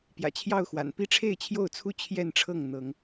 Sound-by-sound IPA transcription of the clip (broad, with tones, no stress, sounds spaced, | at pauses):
p j ä̰˨˩ t͡ɕʰ j ɑ˥˨ ʊ̯ x w a̰˨˩ n p i˥˨ ʈ͡ʂʰ e˥˨ ɪ̯ t͡ɕʰ j o˥˨ ʊ̯ t͡sʰ u˥˨ t͡ɕʰ j ɛ˥˨ n ʈ͡ʂʰ ɤ˥˨ ŋ n̪ ɤ˨˦ ŋ